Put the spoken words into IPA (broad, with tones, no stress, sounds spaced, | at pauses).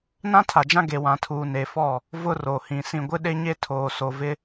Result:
n ã˦ tʰ a˨ d͡ʒ ã˦ ɡ e˨ w ã˨ tʰ uː˨ n e˨ f ɔ˦˨ | v ʊ˦ r o˨ h ĩ˨ s ĩ˨ ɡʷ ɪ˦ ɗ e˦ ɲ e˦ tʰ oː˨ s o˨ v ɪ˦